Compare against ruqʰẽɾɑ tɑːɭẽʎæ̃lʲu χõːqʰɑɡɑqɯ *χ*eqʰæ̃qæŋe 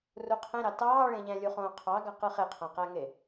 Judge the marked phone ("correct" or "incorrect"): correct